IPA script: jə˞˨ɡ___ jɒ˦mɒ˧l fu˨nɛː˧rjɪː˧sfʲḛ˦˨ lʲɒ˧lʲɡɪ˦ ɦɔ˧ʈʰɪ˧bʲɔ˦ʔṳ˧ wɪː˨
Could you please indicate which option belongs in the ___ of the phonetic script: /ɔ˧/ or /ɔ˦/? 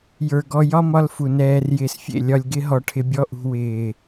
ɔ˧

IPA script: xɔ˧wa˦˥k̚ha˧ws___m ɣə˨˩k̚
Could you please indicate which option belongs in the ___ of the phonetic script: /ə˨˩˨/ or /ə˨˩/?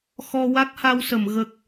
ə˨˩˨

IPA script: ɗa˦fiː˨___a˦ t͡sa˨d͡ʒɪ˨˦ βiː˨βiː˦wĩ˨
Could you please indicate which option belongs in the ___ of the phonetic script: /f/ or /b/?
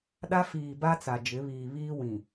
b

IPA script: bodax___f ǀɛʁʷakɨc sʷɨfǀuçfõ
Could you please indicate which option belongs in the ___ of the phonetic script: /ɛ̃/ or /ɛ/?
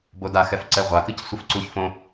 ɛ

